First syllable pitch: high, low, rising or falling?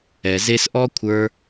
low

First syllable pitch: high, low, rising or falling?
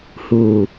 low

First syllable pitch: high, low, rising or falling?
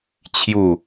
falling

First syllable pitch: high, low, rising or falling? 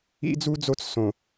high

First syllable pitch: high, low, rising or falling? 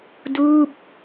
falling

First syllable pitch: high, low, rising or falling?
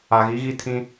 low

